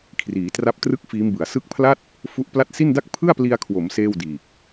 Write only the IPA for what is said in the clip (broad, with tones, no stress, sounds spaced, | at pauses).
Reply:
kʰ r iː˩˦ t r a˦˥ p̚ t r ɯ˥˩ k̚ f iː˦˥ m b ɯ˨˩ a̯ s ɯ˦˥ k̚ pʰ l a˥˩ t̚ | f u˦˥ ʔ p l a˥˩ t̚ s i˥˩ n d a˥˩ k̚ pʰ ɯ˥˩ a̯ p l i˧ a̯ kʰ w o˩˦ m s eː˥˩ w d iː˨˩ k̚